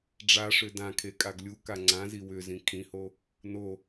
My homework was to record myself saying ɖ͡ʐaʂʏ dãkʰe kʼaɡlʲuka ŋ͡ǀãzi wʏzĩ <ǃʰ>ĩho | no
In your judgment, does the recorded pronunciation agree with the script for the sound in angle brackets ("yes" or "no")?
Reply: no